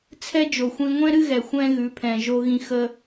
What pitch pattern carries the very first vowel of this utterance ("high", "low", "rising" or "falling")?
high